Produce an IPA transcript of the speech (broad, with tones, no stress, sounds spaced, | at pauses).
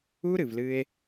u˦ ɾ ɨ˨ v l ɨ˧ e̯